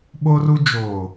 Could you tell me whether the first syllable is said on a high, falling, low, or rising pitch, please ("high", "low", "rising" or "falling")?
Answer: high